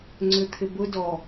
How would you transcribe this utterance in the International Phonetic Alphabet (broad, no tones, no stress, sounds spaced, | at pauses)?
ŋ͡ǀ ʏ t̪ʰ ɪ b ʊ d ɔ